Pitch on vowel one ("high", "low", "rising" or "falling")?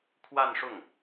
falling